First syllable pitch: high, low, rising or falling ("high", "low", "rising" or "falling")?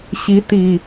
rising